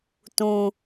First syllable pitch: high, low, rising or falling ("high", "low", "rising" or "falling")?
high